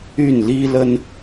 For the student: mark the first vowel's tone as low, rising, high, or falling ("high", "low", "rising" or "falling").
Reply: falling